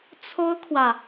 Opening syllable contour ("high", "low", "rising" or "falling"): high